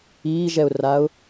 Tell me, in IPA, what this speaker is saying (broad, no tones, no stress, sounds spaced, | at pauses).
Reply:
iː ʒ ɛ ʊ̯ r a ʊ̯